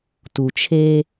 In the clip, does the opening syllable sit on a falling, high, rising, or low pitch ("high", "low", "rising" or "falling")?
low